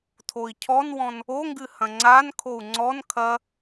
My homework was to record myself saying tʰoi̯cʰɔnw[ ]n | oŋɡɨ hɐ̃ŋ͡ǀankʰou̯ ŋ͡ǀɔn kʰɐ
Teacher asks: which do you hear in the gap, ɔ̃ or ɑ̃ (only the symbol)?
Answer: ɔ̃